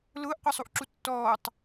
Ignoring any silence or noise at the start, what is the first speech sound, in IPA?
l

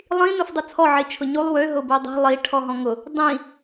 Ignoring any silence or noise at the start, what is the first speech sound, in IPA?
lˠ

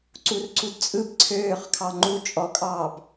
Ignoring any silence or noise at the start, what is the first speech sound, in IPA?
ǀ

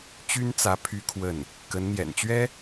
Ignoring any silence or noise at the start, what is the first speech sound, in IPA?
t͡ɕ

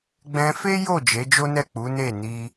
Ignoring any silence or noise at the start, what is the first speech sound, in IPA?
ɡ͡b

